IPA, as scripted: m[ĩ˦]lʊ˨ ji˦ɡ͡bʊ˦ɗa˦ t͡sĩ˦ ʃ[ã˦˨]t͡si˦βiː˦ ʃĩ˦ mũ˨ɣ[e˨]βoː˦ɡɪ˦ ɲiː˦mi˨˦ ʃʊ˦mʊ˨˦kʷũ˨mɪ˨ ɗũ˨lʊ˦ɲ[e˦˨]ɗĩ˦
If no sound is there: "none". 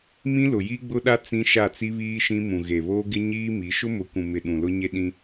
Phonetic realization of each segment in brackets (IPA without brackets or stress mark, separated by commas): ĩ˦, a˦˨, e˨, e˦